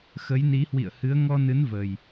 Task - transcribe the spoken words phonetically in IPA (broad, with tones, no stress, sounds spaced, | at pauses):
x ə˨˦ j n i˨˦ h w ḭ˧˨ ə̯ h ɨ˨˦ ə̯ ŋ ɔ˧ n ɨ˨˦ n v ə˨˩ j